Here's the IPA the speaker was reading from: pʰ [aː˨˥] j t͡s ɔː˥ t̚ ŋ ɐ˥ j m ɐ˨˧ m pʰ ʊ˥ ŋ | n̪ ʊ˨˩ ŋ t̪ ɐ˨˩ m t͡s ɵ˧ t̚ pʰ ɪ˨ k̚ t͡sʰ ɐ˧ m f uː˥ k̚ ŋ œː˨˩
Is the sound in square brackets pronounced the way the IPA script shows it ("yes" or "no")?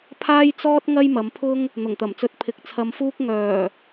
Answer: no